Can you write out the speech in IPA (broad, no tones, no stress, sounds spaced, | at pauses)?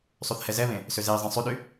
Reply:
sˤ y θ h ɛ z ɛ β ẽ | s ø z e i̯ zˤ ẽ sˤ y ɗ y